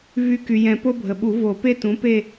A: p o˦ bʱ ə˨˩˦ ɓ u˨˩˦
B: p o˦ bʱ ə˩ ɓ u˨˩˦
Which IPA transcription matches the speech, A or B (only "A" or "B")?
B